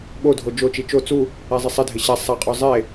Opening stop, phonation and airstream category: implosive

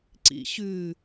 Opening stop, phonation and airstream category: click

